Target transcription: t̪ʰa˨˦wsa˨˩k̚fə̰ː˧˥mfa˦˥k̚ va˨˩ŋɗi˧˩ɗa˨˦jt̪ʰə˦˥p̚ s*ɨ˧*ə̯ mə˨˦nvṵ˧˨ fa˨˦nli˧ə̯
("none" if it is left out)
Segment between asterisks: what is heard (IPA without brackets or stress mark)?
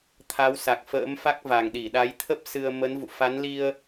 ɨ˧